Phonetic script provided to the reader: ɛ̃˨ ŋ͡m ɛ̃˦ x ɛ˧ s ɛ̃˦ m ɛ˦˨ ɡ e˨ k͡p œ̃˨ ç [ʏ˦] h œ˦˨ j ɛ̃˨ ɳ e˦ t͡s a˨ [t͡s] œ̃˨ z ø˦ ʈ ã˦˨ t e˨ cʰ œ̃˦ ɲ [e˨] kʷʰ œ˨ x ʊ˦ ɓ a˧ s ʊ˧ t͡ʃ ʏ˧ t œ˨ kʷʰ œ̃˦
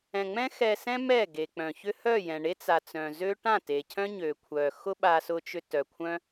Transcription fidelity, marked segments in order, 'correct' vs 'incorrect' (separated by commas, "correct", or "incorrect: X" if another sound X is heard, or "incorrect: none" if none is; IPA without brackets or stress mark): correct, correct, incorrect: ø˨